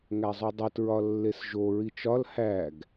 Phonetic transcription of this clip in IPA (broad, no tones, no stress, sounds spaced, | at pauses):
ŋ æ zˤ u dˤ o t ɹ ɒ lː e s ʒ o ɹ i t͡ʃ ɒ l h æ ɡ